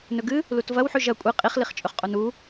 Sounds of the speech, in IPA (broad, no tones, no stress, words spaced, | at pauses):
nɵɡɨ | lutvɐwħʉ ʒɐ kʷʼe qʼiχliχt͡ʃʼɵχqʼon u